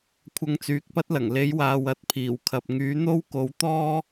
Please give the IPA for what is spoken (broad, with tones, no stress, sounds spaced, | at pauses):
kʷʰ ɐ˧ ŋ t͡s yː˨ k̚ p ɐ˥ t̚ l ɐ˨˩ ŋ l e˨˥ j w aː˨ w ɐ˧ t̚ pʰ iː˨˩ w kʰ ɐ˨ p̚ ŋ yː˨˥ n̪ o˥ w k o˨˥ w t̪ ɔː˥